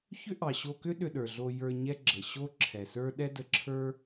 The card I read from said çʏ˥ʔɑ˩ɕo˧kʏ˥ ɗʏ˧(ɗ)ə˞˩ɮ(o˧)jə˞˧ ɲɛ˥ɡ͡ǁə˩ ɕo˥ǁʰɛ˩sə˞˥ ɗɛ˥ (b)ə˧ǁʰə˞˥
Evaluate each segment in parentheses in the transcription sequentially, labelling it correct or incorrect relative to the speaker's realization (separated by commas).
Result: correct, correct, incorrect